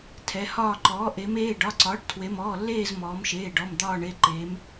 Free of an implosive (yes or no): yes